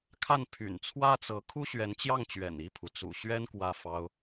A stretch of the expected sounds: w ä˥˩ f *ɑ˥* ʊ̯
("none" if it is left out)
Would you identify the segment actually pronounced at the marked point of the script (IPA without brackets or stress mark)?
ɑ˥